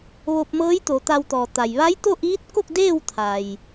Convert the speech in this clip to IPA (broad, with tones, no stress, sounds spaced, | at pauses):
ʋ o˧ p̚ m ɤː˧˥ j t̪ o˩˧ t̪ a˧ w t̪ ɔː˩ t̪ a˩ j ʋ a˧˥ j t̪ o˥˨ ʔ iː˧˥ t̚ k o˥˨ k̚ d eː˥˨ w t̪ʰ a˩ j